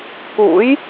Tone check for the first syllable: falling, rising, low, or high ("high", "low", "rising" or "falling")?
rising